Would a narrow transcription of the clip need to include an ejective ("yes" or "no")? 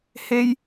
no